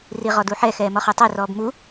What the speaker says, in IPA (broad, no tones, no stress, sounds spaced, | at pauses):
r i ʁ ɔ d u ħ ɛ x ɛː m ɔ χ ə˞ tˤ ɛ r ɔː b m u